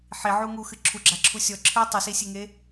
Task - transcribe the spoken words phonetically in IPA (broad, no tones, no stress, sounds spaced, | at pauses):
ħ i ʕ u ŋ u x ɨ ǁʰ u ɡ͡ǁ a ǁʰ u sʲ ɔ ǁʰ ɨ tˤ u s i sʲ e ŋ e